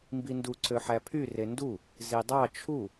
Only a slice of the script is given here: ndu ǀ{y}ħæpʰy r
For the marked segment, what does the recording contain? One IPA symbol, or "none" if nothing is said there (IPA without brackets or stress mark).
ø